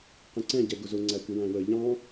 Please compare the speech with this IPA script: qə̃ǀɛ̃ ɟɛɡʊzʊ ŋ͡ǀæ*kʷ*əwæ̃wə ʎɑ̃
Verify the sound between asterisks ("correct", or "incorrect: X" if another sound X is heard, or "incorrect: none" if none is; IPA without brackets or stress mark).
correct